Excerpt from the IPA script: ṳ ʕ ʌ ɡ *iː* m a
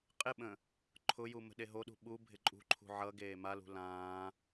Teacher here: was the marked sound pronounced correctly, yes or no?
no